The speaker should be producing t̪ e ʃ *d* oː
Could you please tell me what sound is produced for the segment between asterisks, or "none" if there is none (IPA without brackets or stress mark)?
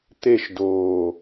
d